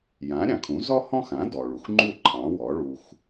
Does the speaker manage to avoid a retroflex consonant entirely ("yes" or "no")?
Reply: no